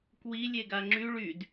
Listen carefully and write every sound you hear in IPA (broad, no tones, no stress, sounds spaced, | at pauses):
k w i lʲ e ɡ a ŋ͡ǁ y ɭ y d